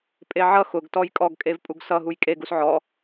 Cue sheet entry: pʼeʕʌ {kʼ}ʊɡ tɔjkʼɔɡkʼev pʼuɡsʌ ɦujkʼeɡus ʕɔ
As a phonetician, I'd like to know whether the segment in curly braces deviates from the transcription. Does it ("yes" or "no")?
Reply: yes